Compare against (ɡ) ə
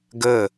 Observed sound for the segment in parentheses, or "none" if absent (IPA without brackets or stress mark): ɡ